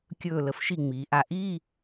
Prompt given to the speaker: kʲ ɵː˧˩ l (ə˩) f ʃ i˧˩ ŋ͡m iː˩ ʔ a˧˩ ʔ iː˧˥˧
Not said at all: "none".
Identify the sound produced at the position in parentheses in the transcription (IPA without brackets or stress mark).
ə˩